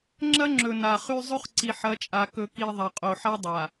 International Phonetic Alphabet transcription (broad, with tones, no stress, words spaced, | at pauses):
ŋ͡ǁɐ˦ŋ͡ǁɵ˨ na˨χʉ˦ zˤɵ˦χǀi˨ħɐ˨˦t͡ʃʼa˨ kɵ˨ki˨ ðˤɐ˨qʼo˨ħa˦dˤa˨